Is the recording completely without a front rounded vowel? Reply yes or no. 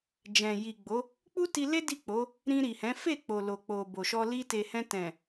yes